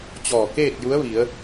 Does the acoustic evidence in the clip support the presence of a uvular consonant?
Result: no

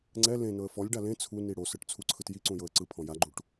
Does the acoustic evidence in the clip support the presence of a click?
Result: yes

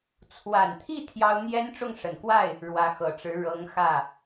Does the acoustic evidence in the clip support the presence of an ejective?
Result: no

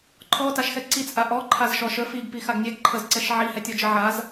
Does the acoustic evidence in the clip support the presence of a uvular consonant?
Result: no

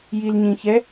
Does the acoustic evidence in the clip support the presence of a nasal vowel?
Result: yes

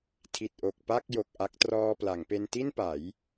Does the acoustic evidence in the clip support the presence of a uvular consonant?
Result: no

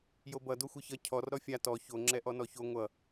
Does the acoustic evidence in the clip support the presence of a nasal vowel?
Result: no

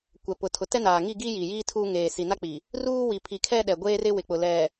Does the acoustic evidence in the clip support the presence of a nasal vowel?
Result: no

